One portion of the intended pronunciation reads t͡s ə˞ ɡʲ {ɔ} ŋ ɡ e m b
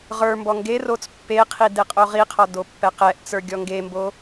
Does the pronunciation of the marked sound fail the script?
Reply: no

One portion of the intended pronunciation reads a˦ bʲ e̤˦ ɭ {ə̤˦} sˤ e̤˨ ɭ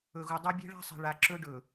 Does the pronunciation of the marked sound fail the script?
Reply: yes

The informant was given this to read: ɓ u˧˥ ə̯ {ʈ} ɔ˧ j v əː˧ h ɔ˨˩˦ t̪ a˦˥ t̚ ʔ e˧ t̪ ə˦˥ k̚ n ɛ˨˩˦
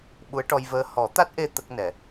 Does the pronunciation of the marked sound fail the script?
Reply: no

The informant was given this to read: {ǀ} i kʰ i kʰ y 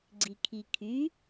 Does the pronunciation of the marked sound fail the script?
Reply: yes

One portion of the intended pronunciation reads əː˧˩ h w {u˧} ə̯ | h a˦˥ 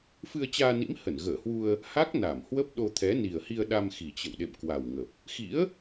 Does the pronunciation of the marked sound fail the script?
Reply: no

